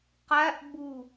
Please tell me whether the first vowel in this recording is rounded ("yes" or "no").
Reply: no